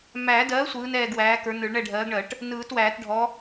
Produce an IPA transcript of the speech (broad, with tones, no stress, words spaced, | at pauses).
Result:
mæ˨˩˦dɜ˨˥ sʷɯː˨˥nɛː˦˨ɡwæː˨˥kə˞˨˥ nɯ˨˩˦ɭɳɛ˦˨ɖʱɜː˨˥ɡɳɜ˨˩˦ʈ | nɯː˨˩˦twæː˨˩˦tɖʱɔ˨˥